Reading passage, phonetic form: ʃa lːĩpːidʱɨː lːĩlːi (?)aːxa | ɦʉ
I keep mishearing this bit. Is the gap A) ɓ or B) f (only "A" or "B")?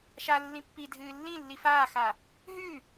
B